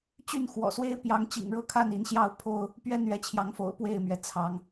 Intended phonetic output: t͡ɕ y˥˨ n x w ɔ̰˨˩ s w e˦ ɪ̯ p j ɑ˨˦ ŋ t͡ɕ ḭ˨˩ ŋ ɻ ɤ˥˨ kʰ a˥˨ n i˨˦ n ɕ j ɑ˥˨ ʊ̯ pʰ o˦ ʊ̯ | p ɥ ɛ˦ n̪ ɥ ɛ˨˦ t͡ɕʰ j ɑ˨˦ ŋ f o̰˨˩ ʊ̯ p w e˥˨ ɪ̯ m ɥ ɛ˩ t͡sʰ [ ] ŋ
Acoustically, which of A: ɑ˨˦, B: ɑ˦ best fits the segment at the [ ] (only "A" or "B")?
A